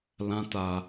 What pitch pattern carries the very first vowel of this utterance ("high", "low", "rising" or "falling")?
high